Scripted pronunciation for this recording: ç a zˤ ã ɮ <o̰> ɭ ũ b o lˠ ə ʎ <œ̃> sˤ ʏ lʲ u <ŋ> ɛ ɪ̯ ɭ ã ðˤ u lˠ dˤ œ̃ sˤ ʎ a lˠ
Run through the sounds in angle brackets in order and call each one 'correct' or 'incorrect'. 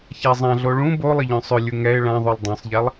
incorrect, correct, correct

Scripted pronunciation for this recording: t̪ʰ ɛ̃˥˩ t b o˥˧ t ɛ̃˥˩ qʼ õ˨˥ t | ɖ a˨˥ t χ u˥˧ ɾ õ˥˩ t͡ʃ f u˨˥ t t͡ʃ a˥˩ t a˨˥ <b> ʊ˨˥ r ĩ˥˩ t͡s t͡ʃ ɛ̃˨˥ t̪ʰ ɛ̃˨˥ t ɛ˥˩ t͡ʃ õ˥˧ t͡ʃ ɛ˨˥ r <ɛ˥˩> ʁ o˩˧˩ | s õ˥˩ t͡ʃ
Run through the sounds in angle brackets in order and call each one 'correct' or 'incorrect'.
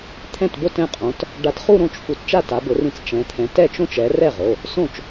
correct, correct

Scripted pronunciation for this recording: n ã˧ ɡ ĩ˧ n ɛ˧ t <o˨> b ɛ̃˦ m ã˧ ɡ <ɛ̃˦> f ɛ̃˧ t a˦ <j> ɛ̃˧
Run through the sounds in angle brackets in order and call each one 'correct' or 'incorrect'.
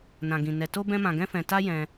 incorrect, correct, correct

